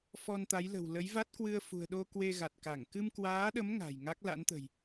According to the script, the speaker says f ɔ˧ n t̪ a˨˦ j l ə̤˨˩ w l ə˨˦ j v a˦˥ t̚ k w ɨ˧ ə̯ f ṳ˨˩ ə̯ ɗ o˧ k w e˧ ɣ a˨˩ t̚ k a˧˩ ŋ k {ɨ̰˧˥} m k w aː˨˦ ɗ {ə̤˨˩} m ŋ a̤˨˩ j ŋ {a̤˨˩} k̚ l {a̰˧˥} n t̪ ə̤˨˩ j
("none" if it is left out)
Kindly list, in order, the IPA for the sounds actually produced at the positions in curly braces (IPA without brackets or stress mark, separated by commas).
ɨ˧, ə˨˦, a˦˥, a̰˧˥